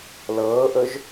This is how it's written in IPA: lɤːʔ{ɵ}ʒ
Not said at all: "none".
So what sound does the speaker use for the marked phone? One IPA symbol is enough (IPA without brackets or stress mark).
ɵ